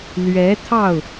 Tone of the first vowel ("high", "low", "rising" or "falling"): rising